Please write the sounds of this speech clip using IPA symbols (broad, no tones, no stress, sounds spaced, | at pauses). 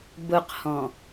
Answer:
b ʊ q h ɔ̃